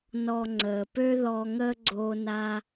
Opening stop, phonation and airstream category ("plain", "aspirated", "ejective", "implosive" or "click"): click